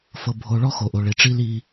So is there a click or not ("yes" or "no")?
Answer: no